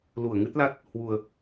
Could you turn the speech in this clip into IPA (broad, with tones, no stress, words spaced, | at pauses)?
lu˧˩ə̯ŋɨ˦˥t̚la˦˥t̚ | hwu˨˩ə̯